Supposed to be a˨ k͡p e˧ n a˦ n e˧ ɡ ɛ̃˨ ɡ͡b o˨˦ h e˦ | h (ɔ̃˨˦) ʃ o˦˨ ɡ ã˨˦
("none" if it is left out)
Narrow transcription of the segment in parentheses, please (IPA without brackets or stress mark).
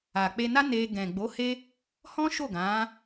ɔ̃˦